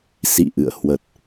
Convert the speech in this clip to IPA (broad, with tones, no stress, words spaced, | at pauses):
sḭ˧˨ʔɨ̰˧˨ə̯ hwə˨˩t̚